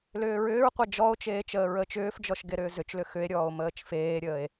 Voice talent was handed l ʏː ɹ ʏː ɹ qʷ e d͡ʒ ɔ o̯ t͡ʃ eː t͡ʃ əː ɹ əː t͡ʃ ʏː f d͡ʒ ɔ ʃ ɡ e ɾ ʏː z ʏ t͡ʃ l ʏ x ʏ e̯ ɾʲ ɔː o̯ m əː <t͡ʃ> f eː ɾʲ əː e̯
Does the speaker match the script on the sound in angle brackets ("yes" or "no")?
yes